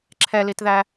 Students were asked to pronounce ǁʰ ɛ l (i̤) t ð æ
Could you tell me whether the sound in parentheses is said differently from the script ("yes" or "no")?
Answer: yes